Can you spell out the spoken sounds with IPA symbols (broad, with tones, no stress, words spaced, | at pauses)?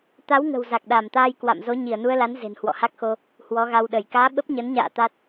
t̪a˨˦w ŋə̤˨˩wza˨˩k̚ɗa˧˩mt̪aː˧j kwa̰˧˨m zo˨˦ɲi˧˩ə̯nu˧ə̯la˨˦n ze̤˨˩nhwɔ̰˧˨ha˦˥k̚xo˧ | hwɔ˨˦ɣa˧wɗə˧˩j kaː˨˦ ɓə˦˥p̚ɲə˨˦nɲa̰ː˧˨ t̪a˦˥t̚